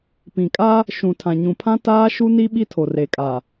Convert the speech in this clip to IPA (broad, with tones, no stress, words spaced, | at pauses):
pĩ˨kʼa˦ | ʃũ˨tʰã˨ ɲũ˨pʰã˦ taː˦ʃu˦ni˦ ɓi˦tʰo˨re˨kʼa˨